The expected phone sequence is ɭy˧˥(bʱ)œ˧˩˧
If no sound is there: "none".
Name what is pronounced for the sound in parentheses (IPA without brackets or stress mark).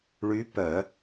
p